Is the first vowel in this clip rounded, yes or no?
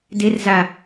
no